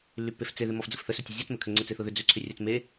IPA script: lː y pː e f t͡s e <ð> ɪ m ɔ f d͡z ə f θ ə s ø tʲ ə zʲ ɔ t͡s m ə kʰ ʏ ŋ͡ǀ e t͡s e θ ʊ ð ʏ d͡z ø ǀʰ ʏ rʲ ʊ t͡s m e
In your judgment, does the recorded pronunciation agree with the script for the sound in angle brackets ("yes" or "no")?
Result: yes